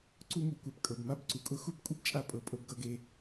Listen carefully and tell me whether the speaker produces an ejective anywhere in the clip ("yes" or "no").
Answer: yes